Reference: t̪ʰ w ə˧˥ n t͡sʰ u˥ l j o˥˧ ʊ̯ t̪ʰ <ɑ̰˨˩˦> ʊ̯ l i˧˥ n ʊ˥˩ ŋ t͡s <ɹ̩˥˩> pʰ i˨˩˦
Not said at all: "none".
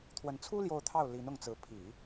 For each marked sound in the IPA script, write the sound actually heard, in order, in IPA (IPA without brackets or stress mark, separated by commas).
ɑ˥˩, ɹ̩˧˥